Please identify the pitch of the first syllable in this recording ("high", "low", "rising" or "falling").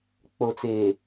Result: low